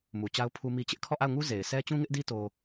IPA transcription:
m u˨ t͡ɕ a˦ ʊ̯ pʰ u˦ m i˦ t͡ɕ ɪ˦ ʔ kʰ ɔ˦˨ ʔ a˦˨ ʊ̯ ŋ u˦ z e˨ ɪ̯ sʰ ɛ˦ t͡ɕ ũ˦ ŋ ɪ˦ ʔ d i˦ t o˦

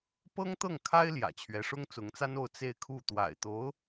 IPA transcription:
p ɤ˥ ŋ t̪ ɤ˥˩ ŋ kʰ a˥ ɪ̯ l j ä̰˨˩ t͡ɕʰ ɥ ɛ˧˥ ʂ ʊ˥ ŋ t͡s ʊ˧˥ ŋ t͡s a˥ n o˥˧ ʊ̯ t͡s e˥˧ ɪ̯ kʰ u˥˩ t̪ w a̰˨˩ ɪ̯ t̪ o˧˥ ʊ̯

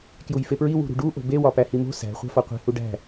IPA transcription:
k j u j f e p ɹ i w ṳ ɾ ṳ ɖ u ʔ o̤ b e w ɒ p æ h i m o̤ s æ̤ χʷ æ̤ f ɒ qʷ e̤ h u ɖ æ̤

